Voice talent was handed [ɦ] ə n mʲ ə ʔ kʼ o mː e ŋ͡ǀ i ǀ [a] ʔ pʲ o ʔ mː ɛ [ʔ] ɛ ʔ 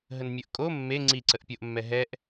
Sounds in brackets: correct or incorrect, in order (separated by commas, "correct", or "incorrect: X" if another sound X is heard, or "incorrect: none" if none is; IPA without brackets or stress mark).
correct, incorrect: ə, incorrect: ɦ